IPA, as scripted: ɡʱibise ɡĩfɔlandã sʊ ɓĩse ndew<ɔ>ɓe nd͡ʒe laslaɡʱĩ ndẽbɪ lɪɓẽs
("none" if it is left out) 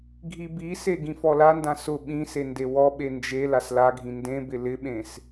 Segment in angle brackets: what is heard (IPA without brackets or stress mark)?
ɔ